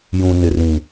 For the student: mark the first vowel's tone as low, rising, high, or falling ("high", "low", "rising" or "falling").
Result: low